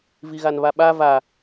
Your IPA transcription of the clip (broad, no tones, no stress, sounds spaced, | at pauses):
v i ɣ a n β a ɓ a v a